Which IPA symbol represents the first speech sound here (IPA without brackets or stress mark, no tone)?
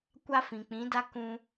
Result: kʷ